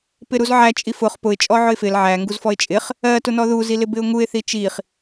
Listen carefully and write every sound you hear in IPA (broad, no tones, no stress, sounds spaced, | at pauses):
p ɪ ɾ u z ʕ æ t͡ʃʼ i f ʊ χ p ʊ ɪ̯ t͡ʃʼ ɔ ʕ ʊ ɪ̯ f ɪ l ʕ æ ŋ ɡ u z f ɔ ɪ̯ t͡ʃʼ ɪ χ | ɜ t ʊ n ɔ ð u z i l ɪ b ɪ ʊ̯ ŋ u ɪ̯ θ i t͡ʃ i χ